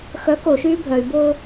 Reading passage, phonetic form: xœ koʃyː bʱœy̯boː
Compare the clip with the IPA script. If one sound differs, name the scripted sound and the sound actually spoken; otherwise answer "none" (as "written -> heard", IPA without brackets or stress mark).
none